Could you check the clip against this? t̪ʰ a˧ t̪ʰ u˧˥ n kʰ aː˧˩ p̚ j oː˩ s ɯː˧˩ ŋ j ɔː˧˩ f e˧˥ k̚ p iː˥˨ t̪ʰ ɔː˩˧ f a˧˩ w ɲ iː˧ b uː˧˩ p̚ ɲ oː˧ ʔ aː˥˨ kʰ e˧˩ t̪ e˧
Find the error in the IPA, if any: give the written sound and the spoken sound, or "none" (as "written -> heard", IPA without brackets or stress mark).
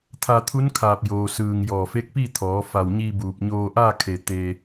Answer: none